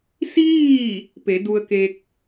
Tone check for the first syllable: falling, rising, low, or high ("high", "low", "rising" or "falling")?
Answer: falling